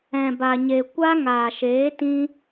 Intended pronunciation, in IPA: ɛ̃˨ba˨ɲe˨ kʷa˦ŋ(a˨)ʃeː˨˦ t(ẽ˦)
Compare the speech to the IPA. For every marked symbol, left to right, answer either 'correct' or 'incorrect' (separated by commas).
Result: incorrect, incorrect